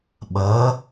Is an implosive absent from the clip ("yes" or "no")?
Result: no